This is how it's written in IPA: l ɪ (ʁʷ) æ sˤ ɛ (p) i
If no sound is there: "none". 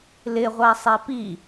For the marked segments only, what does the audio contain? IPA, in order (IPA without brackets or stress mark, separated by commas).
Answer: ʁʷ, p